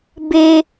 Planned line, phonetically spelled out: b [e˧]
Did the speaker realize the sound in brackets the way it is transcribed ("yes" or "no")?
yes